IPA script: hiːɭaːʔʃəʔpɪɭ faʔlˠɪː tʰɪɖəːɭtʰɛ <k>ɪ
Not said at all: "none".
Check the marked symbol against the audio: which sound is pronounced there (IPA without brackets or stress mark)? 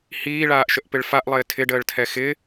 x